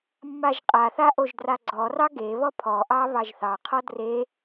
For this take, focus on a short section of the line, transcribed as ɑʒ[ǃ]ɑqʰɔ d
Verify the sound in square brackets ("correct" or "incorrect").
incorrect